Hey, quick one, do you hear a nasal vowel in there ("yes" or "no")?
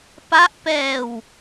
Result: no